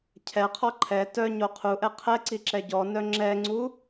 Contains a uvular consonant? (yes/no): yes